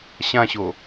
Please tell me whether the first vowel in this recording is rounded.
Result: no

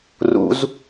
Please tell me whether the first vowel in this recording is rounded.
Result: yes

